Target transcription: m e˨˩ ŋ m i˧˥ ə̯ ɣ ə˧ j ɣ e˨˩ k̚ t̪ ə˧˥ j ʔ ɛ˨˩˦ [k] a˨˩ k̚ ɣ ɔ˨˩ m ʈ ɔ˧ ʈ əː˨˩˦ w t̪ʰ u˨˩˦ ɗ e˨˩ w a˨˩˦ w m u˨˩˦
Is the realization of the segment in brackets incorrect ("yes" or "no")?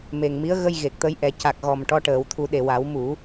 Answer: yes